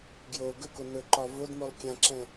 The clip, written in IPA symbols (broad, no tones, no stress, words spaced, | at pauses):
ɡjo ɡɵko nɵǃɒ vodmolˠ kʲãǁɛ̃